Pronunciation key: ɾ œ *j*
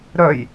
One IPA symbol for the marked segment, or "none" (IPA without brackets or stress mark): j